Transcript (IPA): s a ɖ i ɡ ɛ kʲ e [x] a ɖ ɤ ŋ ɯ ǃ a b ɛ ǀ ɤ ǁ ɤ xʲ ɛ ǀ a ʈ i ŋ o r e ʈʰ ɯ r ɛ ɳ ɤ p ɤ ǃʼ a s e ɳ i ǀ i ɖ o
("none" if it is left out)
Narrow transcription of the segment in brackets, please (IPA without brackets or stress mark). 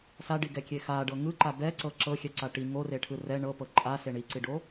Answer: x